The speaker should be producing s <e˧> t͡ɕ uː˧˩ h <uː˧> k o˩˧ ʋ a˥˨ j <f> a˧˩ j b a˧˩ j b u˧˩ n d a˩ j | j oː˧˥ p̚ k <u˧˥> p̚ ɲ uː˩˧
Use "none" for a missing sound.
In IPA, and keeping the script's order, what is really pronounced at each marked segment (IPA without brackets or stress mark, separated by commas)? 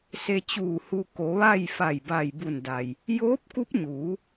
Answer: e˧, u˧, f, u˧˥